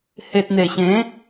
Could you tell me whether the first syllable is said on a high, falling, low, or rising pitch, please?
low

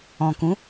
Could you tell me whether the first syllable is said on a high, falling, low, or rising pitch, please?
low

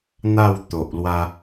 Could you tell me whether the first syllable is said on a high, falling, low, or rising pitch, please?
falling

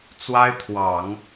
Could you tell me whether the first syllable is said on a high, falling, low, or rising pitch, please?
high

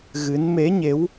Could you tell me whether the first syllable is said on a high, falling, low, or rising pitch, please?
rising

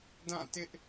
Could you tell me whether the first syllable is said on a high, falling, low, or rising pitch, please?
falling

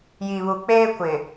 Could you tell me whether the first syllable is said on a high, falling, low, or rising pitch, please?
low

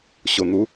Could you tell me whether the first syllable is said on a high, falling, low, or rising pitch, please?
low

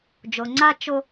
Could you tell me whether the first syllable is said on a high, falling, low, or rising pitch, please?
low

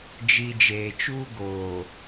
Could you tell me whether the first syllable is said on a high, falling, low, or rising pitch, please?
low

